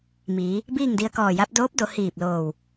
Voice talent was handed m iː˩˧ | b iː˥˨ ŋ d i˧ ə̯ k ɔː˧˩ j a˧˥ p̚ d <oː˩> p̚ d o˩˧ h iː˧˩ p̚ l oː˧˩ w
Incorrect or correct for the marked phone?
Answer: incorrect: oː˧˥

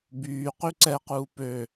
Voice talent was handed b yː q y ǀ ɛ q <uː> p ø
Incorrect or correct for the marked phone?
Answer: correct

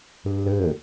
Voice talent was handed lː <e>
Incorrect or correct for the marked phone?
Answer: incorrect: ɘ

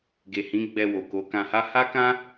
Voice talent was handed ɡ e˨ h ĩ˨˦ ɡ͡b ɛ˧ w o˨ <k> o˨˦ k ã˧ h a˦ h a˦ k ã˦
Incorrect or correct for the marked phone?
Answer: correct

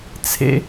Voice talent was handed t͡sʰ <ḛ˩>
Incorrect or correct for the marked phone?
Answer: correct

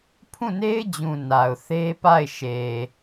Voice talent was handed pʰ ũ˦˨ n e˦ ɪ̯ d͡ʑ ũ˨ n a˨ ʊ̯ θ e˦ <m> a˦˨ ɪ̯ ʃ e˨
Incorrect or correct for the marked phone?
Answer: incorrect: p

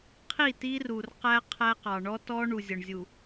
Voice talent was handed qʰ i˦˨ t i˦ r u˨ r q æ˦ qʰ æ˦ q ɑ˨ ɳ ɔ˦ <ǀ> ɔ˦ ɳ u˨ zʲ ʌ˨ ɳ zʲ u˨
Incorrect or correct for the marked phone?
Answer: incorrect: t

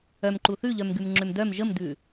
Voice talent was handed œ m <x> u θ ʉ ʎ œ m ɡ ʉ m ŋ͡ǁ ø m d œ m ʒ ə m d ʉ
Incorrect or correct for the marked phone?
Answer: incorrect: ǃ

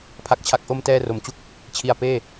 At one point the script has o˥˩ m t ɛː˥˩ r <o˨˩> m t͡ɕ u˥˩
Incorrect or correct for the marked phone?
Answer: correct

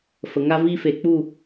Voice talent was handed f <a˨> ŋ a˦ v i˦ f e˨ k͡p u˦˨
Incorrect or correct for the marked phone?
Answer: incorrect: ə˨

